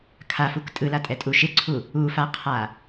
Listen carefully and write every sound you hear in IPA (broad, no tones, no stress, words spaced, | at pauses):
kʰafuk tʼɯlatʼɛtʼu ʃɪǀʰu | ufaqʰa